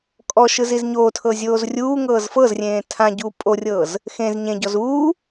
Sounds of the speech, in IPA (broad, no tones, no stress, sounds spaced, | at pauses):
kʼ ɔ ʃ ɯ z i z ɲ oː tʰ ɤ zʲ oː z rʲ uː ŋ ɤː z f ɤ z rʲ ẽː tʰ ã ɟ uː pʼ o rʲ ɤː z | x ẽ z ɲ ẽ ɟ ɔ z uː